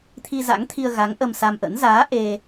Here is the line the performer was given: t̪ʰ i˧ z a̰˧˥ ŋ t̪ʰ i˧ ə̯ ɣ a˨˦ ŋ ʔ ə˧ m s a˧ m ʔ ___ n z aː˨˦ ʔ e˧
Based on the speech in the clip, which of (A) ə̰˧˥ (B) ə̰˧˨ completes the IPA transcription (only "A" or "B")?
A